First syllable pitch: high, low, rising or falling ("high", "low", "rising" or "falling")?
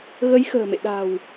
rising